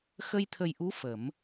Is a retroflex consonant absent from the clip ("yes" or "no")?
yes